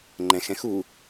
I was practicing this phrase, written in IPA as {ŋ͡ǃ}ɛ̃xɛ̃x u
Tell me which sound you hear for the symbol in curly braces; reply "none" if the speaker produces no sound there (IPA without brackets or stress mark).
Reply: ŋ͡ǃ